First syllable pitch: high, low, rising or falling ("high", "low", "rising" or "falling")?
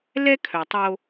high